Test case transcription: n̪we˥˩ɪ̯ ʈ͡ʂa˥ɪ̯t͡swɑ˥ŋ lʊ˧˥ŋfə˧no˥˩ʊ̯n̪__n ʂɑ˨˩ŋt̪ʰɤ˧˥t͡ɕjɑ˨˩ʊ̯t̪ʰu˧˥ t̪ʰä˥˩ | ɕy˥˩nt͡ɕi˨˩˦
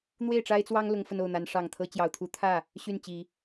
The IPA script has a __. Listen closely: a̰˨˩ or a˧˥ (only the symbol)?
a˧˥